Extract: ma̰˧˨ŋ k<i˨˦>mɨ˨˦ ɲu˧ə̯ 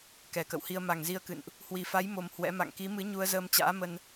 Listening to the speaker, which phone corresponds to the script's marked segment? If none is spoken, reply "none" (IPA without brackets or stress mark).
i˨˦